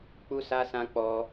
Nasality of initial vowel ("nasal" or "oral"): oral